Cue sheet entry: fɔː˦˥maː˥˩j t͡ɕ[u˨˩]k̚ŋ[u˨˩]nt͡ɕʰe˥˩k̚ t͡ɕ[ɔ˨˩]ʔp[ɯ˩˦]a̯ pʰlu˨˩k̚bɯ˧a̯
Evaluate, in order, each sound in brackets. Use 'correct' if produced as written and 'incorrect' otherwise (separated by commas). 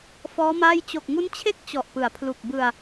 incorrect, incorrect, correct, correct